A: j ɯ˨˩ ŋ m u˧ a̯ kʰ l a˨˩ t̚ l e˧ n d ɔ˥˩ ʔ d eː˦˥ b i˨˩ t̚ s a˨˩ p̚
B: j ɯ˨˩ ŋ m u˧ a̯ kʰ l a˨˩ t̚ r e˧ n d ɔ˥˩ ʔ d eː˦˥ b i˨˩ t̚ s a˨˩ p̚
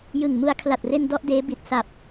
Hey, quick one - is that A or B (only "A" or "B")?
B